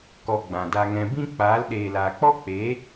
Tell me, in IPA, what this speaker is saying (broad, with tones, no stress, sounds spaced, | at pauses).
k ɔ˧ ɡ͡b ã˨ d a˧ ŋ ɛ̃˧ b ĩ˦ k͡p aː˨˦ l ɗ eː˨ l aː˨ k͡p ɔ˦ k͡p eː˨˦